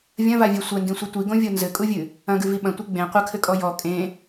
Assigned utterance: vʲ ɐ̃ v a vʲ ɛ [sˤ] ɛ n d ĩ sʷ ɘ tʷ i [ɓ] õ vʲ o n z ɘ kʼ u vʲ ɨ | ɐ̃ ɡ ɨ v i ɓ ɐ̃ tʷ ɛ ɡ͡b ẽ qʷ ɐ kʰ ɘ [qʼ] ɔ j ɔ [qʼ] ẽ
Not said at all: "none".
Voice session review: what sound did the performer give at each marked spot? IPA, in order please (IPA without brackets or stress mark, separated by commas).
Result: sʷ, ɡ, kʼ, kʼ